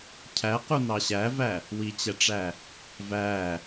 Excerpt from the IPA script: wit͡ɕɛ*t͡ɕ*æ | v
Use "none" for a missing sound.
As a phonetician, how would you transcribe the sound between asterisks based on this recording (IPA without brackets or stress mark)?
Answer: ʈ͡ʂ